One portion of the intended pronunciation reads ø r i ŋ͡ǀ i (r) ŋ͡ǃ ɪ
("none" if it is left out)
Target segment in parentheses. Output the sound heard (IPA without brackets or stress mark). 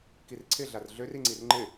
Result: r